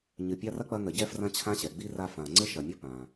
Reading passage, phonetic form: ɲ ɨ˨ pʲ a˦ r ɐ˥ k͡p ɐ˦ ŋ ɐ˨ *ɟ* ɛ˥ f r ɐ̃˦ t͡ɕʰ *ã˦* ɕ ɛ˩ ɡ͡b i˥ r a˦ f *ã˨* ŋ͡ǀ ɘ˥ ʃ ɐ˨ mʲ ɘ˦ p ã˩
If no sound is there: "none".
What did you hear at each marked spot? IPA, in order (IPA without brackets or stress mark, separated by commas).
ɟ, ã˦, ã˨